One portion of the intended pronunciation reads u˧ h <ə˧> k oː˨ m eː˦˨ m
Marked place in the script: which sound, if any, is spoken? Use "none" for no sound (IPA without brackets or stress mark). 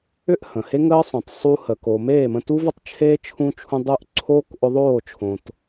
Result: ə˨